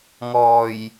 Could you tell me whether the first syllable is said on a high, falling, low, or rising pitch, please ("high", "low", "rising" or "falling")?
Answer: low